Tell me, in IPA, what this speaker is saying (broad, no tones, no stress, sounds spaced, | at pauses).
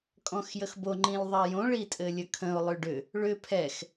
kʼ ɔ̃ x j ə x b o ŋ͡ǃ ĩ l ðˤ ɛ j õ ɭ i tʼ ɘ lʲ ə kʰ ə̃ ʊ̯ lˠ ʏ ɖ ʏ | ɭ ʏ pʰ ɛ x